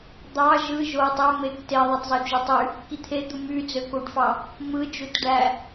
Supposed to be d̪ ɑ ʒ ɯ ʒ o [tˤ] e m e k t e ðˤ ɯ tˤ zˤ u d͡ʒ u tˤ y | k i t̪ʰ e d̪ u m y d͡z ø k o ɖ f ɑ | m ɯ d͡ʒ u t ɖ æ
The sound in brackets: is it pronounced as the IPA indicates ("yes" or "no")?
yes